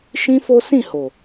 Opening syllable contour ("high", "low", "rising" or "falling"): high